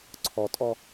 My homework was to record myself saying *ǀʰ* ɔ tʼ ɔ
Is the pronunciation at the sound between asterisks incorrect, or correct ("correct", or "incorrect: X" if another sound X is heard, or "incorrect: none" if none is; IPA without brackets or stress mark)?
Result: correct